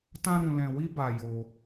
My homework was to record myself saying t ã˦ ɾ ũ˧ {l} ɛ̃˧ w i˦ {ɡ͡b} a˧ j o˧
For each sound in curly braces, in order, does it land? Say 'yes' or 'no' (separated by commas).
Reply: yes, no